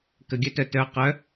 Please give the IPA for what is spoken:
kəɡʲœtœ tœ qœ

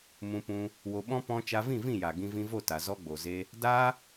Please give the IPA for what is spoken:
mũ˧pũ˧ | wo˧ɓɔ̃˦ pɔ̃˦ t͡ʃa˧vĩ˦˨vĩ˦˨ja˨ ɡĩ˧vĩ˧vo˦˨ta˨ zɔ˧ɡ͡bo˨ze˧ | daː˦

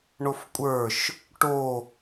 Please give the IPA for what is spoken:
ɳofkʷʼə˞ʃ | ʈo

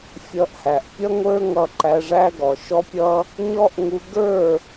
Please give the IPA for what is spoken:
fʲʌ˧ʔhæ˨ʔ pʲʌ˦ŋʷə˞˦ŋʌ˧ ǃæ˧ʐæ˦ɡɔ˨ ʃɔ˦pʲʌ˦ | ɲɔ˦ʔŋu˧ ɡə˞˦˨

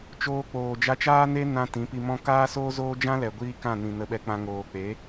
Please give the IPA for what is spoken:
t͡ʃoː˧k͡poː˨ d͡ʒa˧t͡ʃaː˦ne˦ nã˧ tĩ˨˦pi˧mɔ̃˦ kaː˦soː˦zoː˦ d͡ʒã˦lɛ˨ ɡʷiː˦kã˦˨nĩ˨ nə˧ɓɛ˧k͡pã˧ ŋoː˨k͡pe˨˦

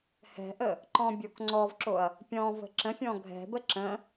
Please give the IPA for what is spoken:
hɛ̤ʔə | ǃɔ̃bʲokŋ͡ǀɔvǁoɐ̯ | pʲɔ̃ və̤ǁə̃fʲɔ̃ ɡʱɛ̤bə ǁə̃

